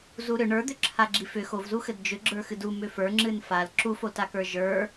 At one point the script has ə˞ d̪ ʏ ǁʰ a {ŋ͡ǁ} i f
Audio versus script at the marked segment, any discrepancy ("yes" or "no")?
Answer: yes